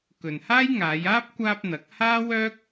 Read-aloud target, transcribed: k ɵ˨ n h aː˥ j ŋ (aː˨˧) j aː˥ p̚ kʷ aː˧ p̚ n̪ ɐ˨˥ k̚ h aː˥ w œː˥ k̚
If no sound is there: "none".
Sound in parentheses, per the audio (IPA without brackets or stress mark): aː˨˧